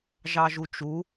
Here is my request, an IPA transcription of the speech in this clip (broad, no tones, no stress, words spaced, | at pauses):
ʒɑʒut͡ʃu